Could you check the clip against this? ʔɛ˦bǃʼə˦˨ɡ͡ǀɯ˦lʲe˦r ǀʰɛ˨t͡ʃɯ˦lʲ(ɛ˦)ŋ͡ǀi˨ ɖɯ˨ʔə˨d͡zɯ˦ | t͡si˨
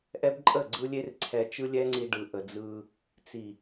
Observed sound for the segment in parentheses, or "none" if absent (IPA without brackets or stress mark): ɛ˦